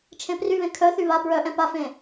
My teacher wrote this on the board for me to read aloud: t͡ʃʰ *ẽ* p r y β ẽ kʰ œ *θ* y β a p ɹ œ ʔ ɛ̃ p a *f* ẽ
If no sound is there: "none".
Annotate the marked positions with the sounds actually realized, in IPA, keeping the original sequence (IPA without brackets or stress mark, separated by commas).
ẽ, θ, f